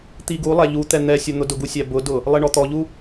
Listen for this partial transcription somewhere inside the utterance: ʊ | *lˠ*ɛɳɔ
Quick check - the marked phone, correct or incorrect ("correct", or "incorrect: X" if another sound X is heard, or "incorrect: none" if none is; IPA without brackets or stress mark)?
correct